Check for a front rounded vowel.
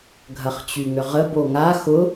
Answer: present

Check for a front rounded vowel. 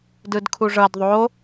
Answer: absent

